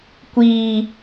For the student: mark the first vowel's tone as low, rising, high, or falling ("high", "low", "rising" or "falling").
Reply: low